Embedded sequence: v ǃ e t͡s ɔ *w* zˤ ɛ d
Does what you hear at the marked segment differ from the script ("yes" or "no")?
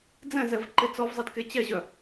yes